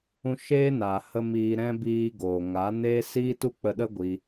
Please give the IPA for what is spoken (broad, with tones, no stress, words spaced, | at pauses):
ũ˧ʃeː˦naː˨ hə˧ miː˧ɾɛ̃˦ biː˧ ɡoː˨ŋa˨˦neː˦ siː˦tu˦k͡pə˧ɗə˦ ɡʷi˦